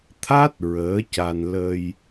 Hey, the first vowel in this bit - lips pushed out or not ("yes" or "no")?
no